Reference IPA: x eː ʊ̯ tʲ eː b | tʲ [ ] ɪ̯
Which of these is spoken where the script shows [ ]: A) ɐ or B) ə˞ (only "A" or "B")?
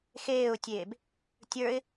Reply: B